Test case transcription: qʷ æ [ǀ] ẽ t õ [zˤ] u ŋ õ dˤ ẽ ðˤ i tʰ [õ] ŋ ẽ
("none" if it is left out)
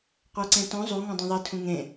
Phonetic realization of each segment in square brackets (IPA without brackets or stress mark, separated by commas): ǀ, zˤ, ũ